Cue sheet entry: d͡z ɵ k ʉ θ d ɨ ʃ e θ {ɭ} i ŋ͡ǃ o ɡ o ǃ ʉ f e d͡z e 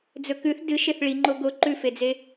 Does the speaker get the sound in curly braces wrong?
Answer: no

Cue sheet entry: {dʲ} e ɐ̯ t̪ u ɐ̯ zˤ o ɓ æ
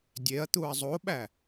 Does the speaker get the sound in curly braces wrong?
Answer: no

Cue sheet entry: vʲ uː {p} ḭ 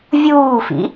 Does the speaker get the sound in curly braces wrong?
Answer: yes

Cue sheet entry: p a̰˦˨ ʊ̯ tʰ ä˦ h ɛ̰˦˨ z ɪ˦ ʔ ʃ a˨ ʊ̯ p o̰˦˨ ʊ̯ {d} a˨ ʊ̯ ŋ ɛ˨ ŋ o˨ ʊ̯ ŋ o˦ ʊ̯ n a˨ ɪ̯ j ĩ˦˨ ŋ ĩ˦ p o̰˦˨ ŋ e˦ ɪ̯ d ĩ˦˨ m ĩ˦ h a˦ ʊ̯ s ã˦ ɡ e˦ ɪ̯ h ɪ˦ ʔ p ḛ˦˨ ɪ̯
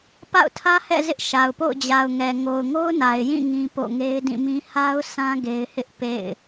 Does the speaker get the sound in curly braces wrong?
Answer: yes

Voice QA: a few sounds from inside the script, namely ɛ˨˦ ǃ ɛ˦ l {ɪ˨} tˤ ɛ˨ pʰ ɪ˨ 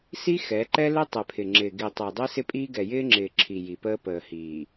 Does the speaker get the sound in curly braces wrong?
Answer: yes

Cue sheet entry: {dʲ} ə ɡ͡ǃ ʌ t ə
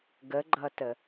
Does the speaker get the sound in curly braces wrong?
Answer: yes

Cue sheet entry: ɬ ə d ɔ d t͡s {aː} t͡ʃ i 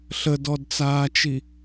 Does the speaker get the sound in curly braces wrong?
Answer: no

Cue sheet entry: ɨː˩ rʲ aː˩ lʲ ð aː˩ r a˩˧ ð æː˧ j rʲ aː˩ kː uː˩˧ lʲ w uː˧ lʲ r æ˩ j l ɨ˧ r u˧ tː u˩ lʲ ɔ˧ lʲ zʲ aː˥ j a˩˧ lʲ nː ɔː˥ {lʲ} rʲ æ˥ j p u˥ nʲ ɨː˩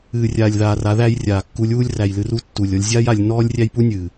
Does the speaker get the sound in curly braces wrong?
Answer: no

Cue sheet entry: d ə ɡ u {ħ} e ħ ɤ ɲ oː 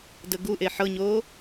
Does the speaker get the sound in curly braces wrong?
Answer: yes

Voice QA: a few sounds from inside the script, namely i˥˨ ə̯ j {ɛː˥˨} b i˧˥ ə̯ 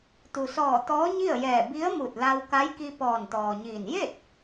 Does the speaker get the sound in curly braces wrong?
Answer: yes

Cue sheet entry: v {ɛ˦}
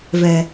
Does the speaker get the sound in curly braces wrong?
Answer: yes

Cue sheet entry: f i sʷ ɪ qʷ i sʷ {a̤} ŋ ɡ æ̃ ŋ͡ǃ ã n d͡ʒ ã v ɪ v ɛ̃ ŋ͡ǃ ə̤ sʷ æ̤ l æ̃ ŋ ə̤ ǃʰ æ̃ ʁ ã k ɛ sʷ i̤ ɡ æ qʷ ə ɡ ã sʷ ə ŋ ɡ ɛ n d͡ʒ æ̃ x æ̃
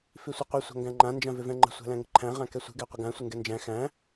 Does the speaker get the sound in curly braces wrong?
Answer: no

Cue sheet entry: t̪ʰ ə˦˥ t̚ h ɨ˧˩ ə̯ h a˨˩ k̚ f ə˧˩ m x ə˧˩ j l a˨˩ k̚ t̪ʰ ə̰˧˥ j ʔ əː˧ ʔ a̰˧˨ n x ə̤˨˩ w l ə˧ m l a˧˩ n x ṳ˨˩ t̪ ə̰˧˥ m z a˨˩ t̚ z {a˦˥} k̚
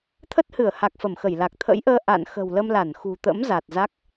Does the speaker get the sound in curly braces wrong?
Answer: no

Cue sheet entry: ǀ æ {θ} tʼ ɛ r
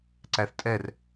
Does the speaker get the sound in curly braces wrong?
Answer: no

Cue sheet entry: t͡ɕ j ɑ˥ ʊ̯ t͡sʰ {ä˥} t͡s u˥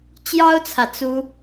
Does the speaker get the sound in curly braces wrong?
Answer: yes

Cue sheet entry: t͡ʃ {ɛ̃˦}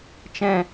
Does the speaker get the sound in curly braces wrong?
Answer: no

